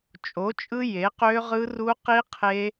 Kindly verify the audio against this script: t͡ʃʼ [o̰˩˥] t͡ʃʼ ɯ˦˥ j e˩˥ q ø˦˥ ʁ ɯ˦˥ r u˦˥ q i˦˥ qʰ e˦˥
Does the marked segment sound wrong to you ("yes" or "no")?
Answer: yes